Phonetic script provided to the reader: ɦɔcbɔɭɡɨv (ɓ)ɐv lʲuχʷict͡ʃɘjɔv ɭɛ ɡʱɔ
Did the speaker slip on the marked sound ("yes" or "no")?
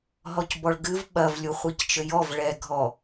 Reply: no